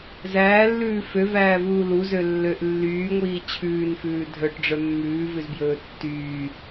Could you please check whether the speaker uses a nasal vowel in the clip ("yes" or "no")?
no